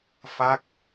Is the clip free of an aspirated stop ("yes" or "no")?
yes